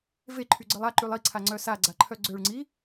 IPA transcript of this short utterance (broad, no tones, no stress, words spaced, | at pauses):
veǃʰyɡ͡ǀəlˠ aǃylˠ iǀʰaŋ͡ǀœ saɡ͡ǀaǃʰœ ɡ͡ǀøɭŋ͡ǀi